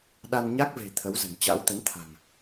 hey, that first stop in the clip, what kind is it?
implosive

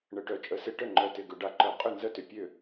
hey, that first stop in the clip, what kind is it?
plain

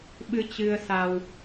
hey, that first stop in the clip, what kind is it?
implosive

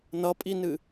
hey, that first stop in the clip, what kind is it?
ejective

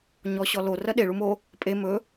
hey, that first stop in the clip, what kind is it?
implosive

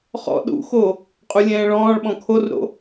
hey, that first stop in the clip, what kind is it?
implosive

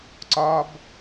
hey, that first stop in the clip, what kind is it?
click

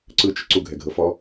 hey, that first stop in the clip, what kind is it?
click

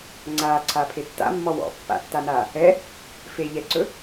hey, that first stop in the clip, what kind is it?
click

